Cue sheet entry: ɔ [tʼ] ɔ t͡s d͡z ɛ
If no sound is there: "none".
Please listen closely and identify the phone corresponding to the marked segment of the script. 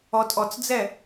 tʼ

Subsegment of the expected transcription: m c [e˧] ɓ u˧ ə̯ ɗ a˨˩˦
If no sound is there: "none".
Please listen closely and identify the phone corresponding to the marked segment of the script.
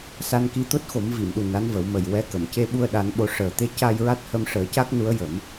e˧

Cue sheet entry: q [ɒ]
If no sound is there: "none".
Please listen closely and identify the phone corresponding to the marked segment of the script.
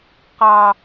ɑ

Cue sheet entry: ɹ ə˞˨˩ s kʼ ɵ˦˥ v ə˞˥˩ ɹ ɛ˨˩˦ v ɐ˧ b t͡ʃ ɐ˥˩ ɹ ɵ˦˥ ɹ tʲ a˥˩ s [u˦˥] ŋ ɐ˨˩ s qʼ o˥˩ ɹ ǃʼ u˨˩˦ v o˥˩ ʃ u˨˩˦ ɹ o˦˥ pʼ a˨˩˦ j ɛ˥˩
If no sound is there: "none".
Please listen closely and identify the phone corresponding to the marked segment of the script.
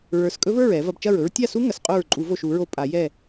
u˦˥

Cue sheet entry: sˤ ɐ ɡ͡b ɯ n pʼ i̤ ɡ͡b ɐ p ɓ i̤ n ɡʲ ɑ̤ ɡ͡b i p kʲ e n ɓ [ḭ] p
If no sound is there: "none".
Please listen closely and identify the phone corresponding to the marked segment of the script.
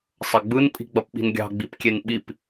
i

